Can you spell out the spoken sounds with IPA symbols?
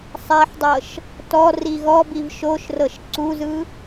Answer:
sˤ a ħ dˤ ɤ ʃ | t ɔ r i ɣ ɔ b i v ʃ o ʃ r ɤ ʃ ǀ u z ɯ

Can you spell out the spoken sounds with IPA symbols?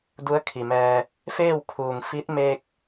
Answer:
d u˧˥ ə̯ kʰ i˩ m ɛː˧ | f eː˥˨ w kʰ uː˩ ŋ f i˧˥ t̚ m e˧ k̚

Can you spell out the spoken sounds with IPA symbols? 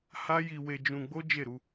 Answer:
h a˦ j i˧ w e˧ d͡ʒ ũ˧ ɡ͡b o˦ d͡ʒ e˦˨ ɾ u˧

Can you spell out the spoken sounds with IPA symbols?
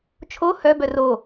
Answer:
t͡ʃʰ o h œ b œ r o

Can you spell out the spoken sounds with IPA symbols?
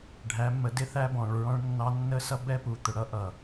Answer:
ɖʱ æ˨˦ mː ə˨˦ d ɪ˦ θ æ˦ b ɔ̃˨ ɭ ɹ ɔ̃˦ ɭ nː ɑ˦ nː ə˦ s ʌ˦ b ɛ˦ p u˨ t̪ ʊ˨ ɽ ʌ˦ ʔ ʌ˨

